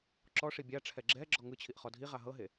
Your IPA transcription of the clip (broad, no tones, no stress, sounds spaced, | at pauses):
ǁ ɔ ʂ i bʲ a ʈ͡ʂʰ ɛ ɡ͡ǁ ɛ ɡ͡ǁ ɔ ŋ ɯ t͡ɕʰ i ʔ χ ɔ dʱ i ʁ a ɦ ɤ ɦ e